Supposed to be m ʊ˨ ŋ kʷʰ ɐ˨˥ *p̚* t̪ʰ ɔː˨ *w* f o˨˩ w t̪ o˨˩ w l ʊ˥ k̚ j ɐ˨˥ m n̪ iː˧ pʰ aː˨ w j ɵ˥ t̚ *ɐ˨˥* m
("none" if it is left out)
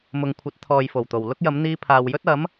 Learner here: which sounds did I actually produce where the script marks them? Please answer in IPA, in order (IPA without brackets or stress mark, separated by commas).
t̚, j, ɐ˨˥